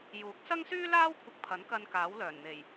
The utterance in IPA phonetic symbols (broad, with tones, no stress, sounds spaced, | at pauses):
j uː˨˥ k̚ s ɐ˥ ŋ s yː˥ l aː˥ w kʷʰ ɪ˧ k̚ pʰ ɐ˨˥ n k ɐ˧ n k aː˨˥ w l œː˨˩ n n̪ e˨˩ j